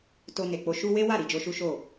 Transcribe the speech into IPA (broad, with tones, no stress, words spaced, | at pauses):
to˧ ne˨k͡po˧ ʃu˧ we˦wa˦˨ ɾi˧d͡ʒo˧ʃu˦ʃo˦˨